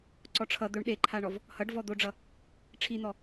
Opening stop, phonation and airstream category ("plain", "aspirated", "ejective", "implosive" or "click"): click